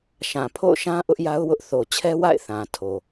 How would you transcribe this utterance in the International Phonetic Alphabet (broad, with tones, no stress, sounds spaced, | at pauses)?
ʃ ã˨ pʰ o̰˦˨ ʊ̯ ʃ ã˦ ʔ ʊ˦ ʔ j a˦ ʊ̯ w ʊ˦ ʔ θ o˨ t͡ɕʰ ɛ˦ w a̰˦˨ ɪ̯ θ ã˨ tʰ o˨